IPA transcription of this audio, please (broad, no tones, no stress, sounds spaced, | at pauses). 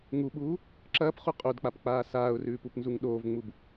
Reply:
ŋ u ɓ uː | ǁ ɐː p χ u qʼ o d k͡p a p k͡p aː s aː ʊ̯ r ʉː p u p n z u ŋ ɗ oː v ŋ͡m u b